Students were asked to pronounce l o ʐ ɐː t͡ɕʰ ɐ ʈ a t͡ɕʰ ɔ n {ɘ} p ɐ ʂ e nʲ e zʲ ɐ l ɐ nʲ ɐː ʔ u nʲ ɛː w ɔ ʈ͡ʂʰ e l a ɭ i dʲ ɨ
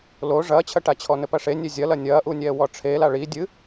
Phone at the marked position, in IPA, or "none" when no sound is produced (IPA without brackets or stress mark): ɘ